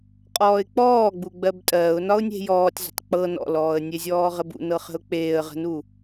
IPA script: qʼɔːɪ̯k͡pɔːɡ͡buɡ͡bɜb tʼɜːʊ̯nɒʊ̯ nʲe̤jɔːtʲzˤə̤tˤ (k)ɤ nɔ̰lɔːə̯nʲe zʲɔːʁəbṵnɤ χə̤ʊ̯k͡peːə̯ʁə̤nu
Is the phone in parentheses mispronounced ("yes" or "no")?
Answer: yes